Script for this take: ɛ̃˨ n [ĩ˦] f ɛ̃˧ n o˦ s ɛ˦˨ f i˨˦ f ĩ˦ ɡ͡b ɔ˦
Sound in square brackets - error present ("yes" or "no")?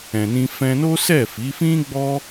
yes